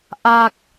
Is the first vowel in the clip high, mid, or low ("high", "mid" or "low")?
low